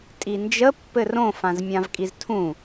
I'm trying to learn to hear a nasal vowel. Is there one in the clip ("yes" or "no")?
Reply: yes